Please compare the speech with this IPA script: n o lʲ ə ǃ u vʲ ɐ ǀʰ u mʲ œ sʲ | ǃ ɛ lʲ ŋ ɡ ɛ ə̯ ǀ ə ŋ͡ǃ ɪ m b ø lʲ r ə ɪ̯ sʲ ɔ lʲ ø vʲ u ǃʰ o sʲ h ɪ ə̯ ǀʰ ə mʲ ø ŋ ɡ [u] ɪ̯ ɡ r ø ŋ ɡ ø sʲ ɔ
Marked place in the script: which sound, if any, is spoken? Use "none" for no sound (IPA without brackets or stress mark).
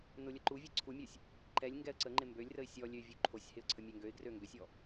ø